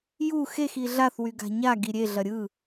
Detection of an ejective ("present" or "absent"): absent